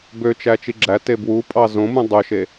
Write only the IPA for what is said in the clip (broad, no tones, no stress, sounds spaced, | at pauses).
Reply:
b ø t͡ʃ æ t͡ʃ i ɡ͡ǁ æ t e b w u pʼ ɑ z õ m ũ dˤ ø ʃ e